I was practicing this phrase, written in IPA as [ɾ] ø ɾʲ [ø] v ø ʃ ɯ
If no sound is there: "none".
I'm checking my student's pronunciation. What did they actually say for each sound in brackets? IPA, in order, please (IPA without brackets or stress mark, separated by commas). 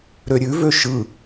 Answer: ɾ, ʉ